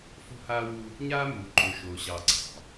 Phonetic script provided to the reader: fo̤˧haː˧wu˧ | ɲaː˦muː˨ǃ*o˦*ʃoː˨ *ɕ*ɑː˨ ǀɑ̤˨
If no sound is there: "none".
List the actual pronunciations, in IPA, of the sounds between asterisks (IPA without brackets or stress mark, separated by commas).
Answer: o˨, ɕ